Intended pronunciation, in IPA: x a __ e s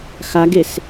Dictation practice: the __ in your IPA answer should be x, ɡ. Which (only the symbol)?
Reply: ɡ